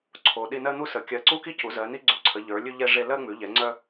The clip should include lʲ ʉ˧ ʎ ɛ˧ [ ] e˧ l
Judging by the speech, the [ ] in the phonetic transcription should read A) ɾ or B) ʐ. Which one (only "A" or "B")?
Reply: B